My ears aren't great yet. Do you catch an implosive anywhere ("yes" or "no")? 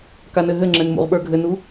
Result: yes